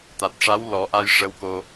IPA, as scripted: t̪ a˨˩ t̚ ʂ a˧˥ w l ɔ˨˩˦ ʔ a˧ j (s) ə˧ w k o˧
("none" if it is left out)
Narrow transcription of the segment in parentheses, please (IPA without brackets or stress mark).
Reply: ʂ